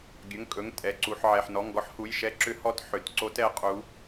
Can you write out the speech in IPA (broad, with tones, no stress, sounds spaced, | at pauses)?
ɡʲ ɵ˩˧˩ ŋ kʼ ɵ˩˧˩ ŋ tʼ ɛ˩˧˩ ǀ u˩˧˩ ħ ʕ ɛ˩˧˩ ħ n ɔ˩˧˩ ŋ ɡ ɔ˧˥ ħ h u˩˧˩ j ʃ ɛ˧˥ ǁ ʏ˧˥ h ɔ˧˥ t ħ ʏ˩˧˩ t ǀ o˧˥ t ɛ˧˥ qʼ u˧˥